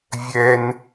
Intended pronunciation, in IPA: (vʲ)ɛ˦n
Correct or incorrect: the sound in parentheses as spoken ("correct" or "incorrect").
correct